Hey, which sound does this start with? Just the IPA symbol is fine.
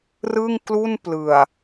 r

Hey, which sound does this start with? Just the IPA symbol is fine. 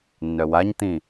nː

